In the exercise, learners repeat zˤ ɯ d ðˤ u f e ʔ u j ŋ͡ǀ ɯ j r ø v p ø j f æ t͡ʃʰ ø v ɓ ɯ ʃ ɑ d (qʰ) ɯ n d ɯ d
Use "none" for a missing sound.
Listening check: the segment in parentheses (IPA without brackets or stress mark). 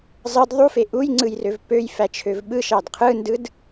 qʰ